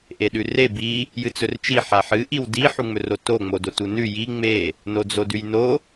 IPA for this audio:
ʔ e ɗ ʉ r e b i | j ɨ t͡s ɵ r t͡ʃ i ħ a ħ ɨ ʔ i w d i ħ u ŋ͡m ɵ r o t o ŋ͡m o d o t u n ʉ j i ŋ͡m e | n o d͡z o d ʉ j n o

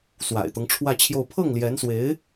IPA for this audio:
s w a̰˨˩ ɪ̯ t̪ ɤ˦ ŋ ʈ͡ʂʰ w ä˥˧ t͡ɕʰ j o˥˧ ʊ̯ pʰ ɤ˥˩ ŋ l j ɛ˧˥ n s w e˧˥ ɪ̯

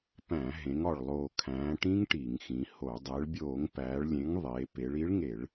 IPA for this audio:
p æ̃˧˩˧ ɦ ẽ˩˧ ŋ ɒ˨˩ ɭ lˠ oː˨˩ kʰ æ̃ː˩˧ ʈ ĩ˦˥ ŋ ʈ i˧˩˧ ŋ x ĩ˩˧ h o˧˩˧ dˤ e˩˧ ɭ bʲ oː˧˩˧ ŋ p æː˩˧ ɭ lʲ ẽ˨˥ ŋ ðˤ eː˩˧ p e˩˧ ɭ i˨˥ ɭ ŋ e˧˩˧ ɭ

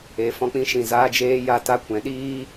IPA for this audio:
e˨˦ f ɔ̃˧ k͡p ĩ˦ ʃ ĩ˨ z aː˧ d͡ʒ eː˧ j a˧ t a˦ kʷ ɛ̃˨˦ ɗ iː˦

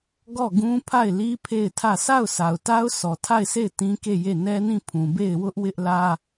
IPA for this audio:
ɡ ɔ˦˨ ɡ ũ˦ pʰ a˦˨ ɪ̯ l i˦ pʰ e˦˨ ɪ̯ tʰ ä˦˨ sʰ a˦˨ ʊ̯ sʰ a˨ ʊ̯ t a˦ ʊ̯ s ɔ˨ tʰ a˦˨ ɪ̯ s e˦˨ ɪ̯ t ĩ˦ k e˦˨ j e˦˨ n ɛ˦ n ĩ˦˨ pʰ ũ˨ b e˦˨ ɪ̯ w ʊ˦ ʔ w ɪ˦ ʔ l ä˦

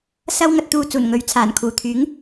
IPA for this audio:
s ɐ˥ w ŋ ɐ˧ t̚ t̪ uː˧ t͡s uː˨˩ n ŋ ɵ˨˥ ɥ t͡sʰ aː˨˩ n kʰ uː˨˩ t̪ʰ yː˨˥ ŋ

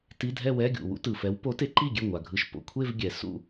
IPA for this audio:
t i˧˥˧ dʱ ɛ˥˧ w ɛ˧˥˧ ɡʲ ṵ˩ w ṵ˨˦ t ɯ˩ f ɛ˨˦ w p o˨˦ t e˨˦ ǃ i˥˩ ɡʲ e˥˩ ŋʷ a˩ ɡʱ ɯ˨˦ ʃ p o̰˩ kʷʰ e˥˧ v ɡʲ ɛ˩ s ṵ˥˩

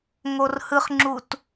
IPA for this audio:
ŋ o r h ɯ χ ŋ͡ǁ u t

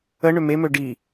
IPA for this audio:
ə ɳ ø m e m ø ɖ i

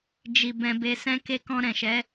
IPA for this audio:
d͡ʒ i˨ b ɛ̃˨ b e˨ s ɛ̃˧ k e˧ k ɔ̃˧ ɾ ɛ̃˨ ʃ ɛ˨˦

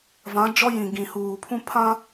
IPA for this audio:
v ã˨˦ d͡ʒ ɔ˦ j ĩ˨ ɡ ĩ˨ h uː˨ pʰ ũ˦ pʰ ã˦

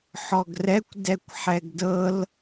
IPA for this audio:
ħ ɔ ɡ r ɛ kʷ d ɛ kʷ ħ ɛ ɡ d ɤ l

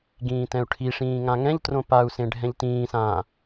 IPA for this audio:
ɡ ĩː t ɛ̃ u̯ ʈʰ i ʂ ĩː ŋ ã ŋ ɛ̃ ʎ t r õ p a u̯ s ẽ ɖʱ ɛ̃ ʎ t ĩː s ãː

